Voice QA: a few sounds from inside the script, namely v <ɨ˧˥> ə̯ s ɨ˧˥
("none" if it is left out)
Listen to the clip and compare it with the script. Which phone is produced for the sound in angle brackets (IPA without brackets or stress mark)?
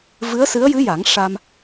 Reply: ɨ˧˥